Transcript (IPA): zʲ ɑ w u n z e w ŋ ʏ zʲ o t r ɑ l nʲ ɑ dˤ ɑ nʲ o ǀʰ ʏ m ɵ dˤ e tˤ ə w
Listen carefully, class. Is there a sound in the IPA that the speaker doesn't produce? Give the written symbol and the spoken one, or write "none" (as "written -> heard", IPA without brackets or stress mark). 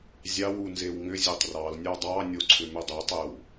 t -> tˤ